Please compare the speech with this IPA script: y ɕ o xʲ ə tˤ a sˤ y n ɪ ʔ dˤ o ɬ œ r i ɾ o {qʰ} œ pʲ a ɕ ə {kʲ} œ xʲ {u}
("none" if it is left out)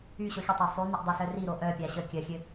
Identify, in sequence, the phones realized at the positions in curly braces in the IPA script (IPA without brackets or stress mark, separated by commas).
ʔ, kʲ, ø